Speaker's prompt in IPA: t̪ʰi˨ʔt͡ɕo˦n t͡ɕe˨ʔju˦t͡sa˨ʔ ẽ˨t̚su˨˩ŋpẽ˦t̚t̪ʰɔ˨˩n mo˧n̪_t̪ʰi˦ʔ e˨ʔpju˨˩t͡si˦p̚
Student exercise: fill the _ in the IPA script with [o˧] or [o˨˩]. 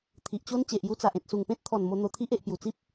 o˧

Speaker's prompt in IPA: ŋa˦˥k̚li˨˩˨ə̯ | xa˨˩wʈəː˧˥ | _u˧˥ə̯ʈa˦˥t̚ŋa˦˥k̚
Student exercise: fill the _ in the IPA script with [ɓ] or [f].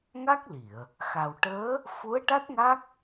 f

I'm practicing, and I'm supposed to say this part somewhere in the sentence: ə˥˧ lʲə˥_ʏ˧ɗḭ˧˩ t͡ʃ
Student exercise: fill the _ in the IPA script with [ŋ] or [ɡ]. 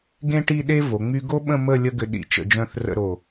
ɡ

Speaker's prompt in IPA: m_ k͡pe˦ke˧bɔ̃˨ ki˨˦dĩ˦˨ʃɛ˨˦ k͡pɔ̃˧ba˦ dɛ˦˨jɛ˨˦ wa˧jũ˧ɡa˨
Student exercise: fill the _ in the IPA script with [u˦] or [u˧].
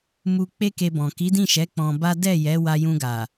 u˧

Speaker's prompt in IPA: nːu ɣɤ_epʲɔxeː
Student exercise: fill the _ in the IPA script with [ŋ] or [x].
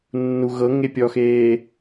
ŋ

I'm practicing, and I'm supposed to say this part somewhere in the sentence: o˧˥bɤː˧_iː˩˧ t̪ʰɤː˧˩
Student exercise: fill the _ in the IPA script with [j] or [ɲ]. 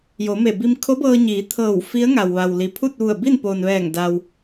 ɲ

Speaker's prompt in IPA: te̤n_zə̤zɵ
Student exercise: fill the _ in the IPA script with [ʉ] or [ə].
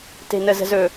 ə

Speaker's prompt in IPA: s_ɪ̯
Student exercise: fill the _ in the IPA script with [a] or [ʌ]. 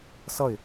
ʌ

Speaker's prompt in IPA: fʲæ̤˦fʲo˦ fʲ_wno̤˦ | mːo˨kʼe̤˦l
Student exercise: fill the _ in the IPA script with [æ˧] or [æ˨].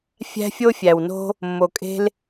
æ˨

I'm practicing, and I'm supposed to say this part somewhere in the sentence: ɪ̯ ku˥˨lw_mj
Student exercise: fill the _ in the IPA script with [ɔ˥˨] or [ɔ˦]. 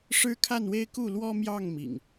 ɔ˦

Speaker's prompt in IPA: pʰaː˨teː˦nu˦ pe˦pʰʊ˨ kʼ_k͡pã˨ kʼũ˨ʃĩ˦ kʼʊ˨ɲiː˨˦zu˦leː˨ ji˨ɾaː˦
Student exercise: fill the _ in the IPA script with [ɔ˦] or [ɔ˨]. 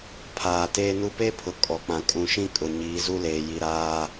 ɔ˨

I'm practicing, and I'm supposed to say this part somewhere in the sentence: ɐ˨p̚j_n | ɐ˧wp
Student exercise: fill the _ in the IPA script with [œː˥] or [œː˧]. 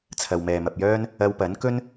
œː˥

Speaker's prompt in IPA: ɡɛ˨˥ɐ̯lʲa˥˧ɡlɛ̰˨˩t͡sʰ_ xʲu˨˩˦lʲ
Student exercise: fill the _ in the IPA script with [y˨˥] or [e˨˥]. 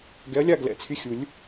y˨˥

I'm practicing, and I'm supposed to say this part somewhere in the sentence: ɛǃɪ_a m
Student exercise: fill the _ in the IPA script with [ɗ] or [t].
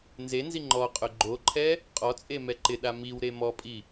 ɗ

